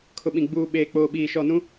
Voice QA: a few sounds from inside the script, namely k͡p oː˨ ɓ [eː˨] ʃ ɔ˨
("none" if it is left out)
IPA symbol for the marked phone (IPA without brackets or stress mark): iː˨